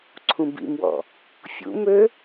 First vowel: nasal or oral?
nasal